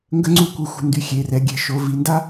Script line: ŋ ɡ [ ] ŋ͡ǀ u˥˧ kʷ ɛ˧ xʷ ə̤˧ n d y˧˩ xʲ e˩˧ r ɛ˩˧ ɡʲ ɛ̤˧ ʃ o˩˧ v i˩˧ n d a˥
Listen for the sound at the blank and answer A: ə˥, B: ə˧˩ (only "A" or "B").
A